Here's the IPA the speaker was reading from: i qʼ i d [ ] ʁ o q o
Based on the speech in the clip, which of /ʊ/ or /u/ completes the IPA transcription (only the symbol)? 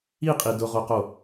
ʊ